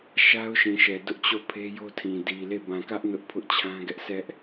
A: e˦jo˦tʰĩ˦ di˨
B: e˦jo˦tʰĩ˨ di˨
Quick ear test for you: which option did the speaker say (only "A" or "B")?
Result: B